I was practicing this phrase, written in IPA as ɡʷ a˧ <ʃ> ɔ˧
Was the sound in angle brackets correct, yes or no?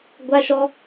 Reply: yes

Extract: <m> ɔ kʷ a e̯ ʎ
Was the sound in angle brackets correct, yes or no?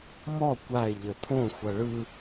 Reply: yes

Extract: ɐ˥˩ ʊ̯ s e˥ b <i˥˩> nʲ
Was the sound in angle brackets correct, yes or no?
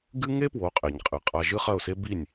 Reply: yes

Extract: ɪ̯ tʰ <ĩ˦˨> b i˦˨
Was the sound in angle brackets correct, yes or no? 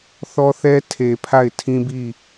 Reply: no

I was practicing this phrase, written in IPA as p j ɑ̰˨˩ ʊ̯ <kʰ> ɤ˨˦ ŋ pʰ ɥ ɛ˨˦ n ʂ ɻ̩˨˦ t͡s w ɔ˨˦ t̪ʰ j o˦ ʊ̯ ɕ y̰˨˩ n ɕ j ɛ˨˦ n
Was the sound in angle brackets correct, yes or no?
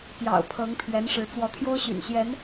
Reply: no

